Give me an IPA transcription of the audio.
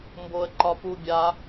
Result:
mboə̯ǃɒpubʲa

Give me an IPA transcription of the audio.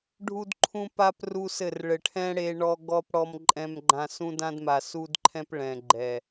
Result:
ɖʱu˦dǃʰũ˦ pa˦p ru˦sɘ˦˨r ɭɘ˨ʈʰɛ̃˦ ɽe˦ɳɔ˦ ɡɔ˦p ɽɔ˦mǃʼɛ̃˦mɡ͡ǃã˦ sũ˦dã˦dma˨ su˦dǃʰɛ̃˦p ɭɛ̃˨ɡ͡ǃɛ˨

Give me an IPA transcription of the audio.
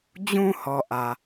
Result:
d͡ʑũ˨ hɔ˨ʔä˨

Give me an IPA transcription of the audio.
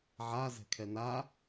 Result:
ʕa zɛ̤kʰɛna

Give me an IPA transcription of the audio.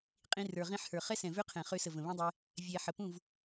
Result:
qʼĩ˦rə˞˧ ʁĩ˧ħhə˞˨ χɛ˦sɛ̃˨vø˦ qʰɛ̃˨χø˧sə˨ və̃˨βĩ˦dˤɛ˦ | vʲɛ˧ ħə˨pũ˦˨v

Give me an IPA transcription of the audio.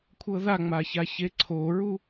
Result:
kʷʰɤðaŋ͡maça çeǀʰoɹu

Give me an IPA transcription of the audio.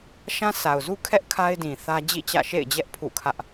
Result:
ʃã˦sa˨ʊ̯zu˦kʰɛ˦ʔ kʰa˦ɪ̯dĩ˨ θä˦d͡ʑḭ˦˨t͡ɕä̰˦˨ ʃḛ˦˨ɪ̯d͡ʑɛ˦ʔ pʰṵ˦˨kʰä˦ʔ

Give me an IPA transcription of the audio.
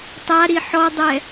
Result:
tˤaɾi ħɔdˤɛ

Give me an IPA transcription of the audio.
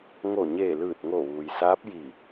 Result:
ŋo˧˩ɲeː˧˩lɯː˧˩t̚ŋo˧˩ ʋuː˩jsaː˧˥p̚ji˧˩

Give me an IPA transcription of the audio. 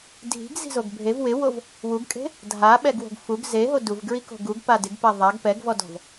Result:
dʱi̤ɡzi̤zoɡ bʱev wɪwov | wuɡkʼe̤ | dʱaɓɛɡwo̤ɡ fuɡ zeɦo duvɡɹiko̤ ɡuɡpa dɪɡpɛ ðˤaɡ pɛɡvɔdɔ̤v

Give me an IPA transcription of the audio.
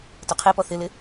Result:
tʊqʰepɔ θɪlɪ

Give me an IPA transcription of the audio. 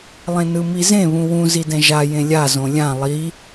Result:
lˠẽnɯmizẽ βũwũ zidɛ̃ʒa jẽlʲa zõlʲã lˠi

